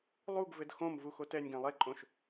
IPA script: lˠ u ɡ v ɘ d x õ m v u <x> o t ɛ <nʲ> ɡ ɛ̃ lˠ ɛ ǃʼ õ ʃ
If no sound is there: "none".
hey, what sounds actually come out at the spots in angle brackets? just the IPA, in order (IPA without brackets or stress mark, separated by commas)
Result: x, nʲ